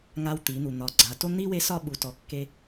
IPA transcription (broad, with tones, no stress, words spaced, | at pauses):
ŋa˧w t̪i˩˧n̪u˩ n̪ɒ˩˧ɡ͡ǀa˩˧to˥ n̪i˥we˧˥ sɒ˥ɓu˩˧tɔ˩˧ kːe˧